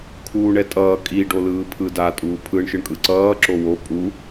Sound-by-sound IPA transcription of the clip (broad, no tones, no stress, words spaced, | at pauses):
kʰuːɳɛtʼʌː kʼi ɖolɯːpʰɯda tʼuːpʰɯɳ ʃɯɳkʼɯǀʌː ǁowo pʼu